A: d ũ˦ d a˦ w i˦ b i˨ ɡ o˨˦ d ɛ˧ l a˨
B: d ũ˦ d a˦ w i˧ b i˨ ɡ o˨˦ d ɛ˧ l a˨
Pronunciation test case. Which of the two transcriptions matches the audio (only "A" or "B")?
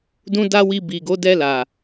B